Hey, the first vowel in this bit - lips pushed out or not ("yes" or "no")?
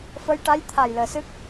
no